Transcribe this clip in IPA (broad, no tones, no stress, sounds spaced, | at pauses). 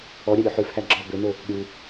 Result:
ɔ ɾʲ æ ɾʲ ʉ ħ ʉ f h æ ɡ͡ǁ ɔ b ø n o | ɾʲ u